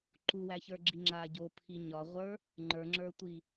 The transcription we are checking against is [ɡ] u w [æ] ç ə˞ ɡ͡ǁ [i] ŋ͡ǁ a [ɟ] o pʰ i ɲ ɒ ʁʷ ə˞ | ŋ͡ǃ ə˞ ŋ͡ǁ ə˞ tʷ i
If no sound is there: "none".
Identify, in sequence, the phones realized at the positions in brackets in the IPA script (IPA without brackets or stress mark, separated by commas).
ǃ, æ, i, ɟ